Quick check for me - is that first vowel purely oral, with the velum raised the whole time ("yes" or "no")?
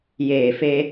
yes